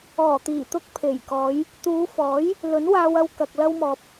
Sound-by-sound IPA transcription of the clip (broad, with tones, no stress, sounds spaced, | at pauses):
ɔː˨˩ t̪ iː˨˩ t̪ ʊ˧ k̚ pʰ e˨˩ j k ɔː˨˧ j | t̪ uː˨˧ f ɔː˨˥ j | l ɵ˨˥ n w aː˧ w ɐ˧ w k ɐ˨ k̚ l ɐ˧ w m ɔː˨ p̚